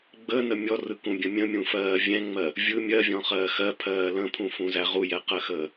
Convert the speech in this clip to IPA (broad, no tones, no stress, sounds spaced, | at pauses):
ɡ͡b ə n ə mʲ ɔ r ɯ k ũ bʲ ə̃ mʲ ə̃ mʲ ũ f ɜː vʲ ɛ̃ ŋ͡m ɜ | vʲ ɯ mʲ ɜ vʲ ɔ̃ χ ɜː x ɜ pʰ ɜː l ə̃ pʰ ũ f ũ z æ ʁ u j ɛ q ɜ x əː